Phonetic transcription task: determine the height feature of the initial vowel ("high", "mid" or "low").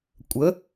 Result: mid